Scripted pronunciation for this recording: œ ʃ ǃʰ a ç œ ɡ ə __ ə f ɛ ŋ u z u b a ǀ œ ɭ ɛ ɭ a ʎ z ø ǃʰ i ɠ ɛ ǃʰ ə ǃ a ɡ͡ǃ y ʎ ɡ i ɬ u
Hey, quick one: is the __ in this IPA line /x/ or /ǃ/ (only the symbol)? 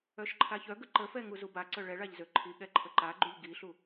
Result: ǃ